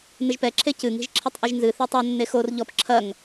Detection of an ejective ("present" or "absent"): absent